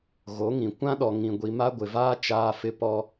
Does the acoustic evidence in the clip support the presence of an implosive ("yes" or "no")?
yes